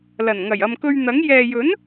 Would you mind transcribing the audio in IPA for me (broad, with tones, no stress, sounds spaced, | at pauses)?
l ɐ˨˩ n ŋ ɐ˨˩ j ɐ˨ m k ɵ˧ ɥ n̪ ɐ˨˥ ŋ j ɛː˨ j ɵ˨˥ n